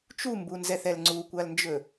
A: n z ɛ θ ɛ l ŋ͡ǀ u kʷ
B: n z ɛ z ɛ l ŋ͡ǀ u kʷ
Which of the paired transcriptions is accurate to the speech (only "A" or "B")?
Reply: A